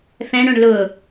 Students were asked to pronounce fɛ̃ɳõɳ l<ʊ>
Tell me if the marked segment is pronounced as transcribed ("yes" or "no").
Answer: yes